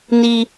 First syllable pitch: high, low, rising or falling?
high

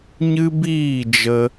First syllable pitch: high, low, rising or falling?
high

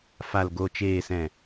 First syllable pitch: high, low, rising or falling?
low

